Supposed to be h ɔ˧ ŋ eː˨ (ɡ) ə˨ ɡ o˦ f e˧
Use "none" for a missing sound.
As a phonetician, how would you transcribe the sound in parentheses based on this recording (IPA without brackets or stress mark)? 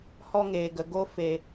ɡ